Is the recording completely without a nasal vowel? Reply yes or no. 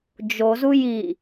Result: yes